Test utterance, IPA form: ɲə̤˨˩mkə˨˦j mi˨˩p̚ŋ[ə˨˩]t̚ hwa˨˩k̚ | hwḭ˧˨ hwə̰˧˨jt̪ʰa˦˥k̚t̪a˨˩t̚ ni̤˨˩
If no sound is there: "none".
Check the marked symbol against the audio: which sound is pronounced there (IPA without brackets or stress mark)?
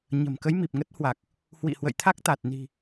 ə˦˥